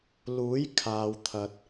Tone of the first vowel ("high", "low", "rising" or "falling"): rising